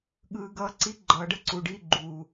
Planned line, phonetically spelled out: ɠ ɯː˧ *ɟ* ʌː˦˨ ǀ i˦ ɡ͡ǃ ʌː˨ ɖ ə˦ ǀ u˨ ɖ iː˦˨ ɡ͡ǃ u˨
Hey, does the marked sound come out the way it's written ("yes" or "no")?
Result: no